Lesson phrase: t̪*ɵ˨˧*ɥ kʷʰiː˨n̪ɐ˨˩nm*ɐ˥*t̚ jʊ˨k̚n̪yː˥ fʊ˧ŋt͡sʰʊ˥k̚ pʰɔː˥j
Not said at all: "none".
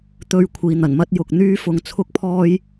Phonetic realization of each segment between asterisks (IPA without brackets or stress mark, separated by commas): ɵ˨, ɐ˥